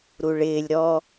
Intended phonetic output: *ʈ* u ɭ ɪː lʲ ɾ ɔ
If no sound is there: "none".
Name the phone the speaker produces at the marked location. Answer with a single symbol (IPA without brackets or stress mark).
ɾ